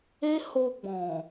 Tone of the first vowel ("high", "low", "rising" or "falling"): high